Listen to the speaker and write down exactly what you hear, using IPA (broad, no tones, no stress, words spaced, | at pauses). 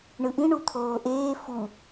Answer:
ɳɯʔĩ ɳut̪ʰoːʔeː fu